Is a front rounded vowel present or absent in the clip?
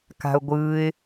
absent